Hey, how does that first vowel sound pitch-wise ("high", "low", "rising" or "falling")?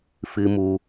high